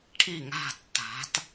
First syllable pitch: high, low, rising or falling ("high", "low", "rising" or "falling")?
falling